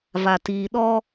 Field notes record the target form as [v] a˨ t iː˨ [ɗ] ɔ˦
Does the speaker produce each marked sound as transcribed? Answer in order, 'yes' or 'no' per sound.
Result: yes, yes

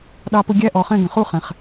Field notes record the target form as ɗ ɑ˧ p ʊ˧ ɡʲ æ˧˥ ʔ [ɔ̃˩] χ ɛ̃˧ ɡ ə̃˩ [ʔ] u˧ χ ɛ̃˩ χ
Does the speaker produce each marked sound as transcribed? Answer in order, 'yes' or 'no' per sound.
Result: no, no

